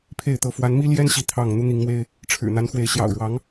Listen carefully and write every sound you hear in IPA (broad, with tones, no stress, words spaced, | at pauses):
pʰe˥˨ɪ̯t̪ɤ˥˨ fwa˨˦nmi˦ljɛ˦n ɕi˥˨t̪ʰɑ˥˨ŋ n̪u˦n̪i˨˦ŋmwe˦ɪ̯ | ʈ͡ʂʰɻ̩˨˩n̪a˨˦nxwe˨˦ɪ̯ ɕjɑ̰˨˩ʊ̯ɻwɑ˨˦ŋ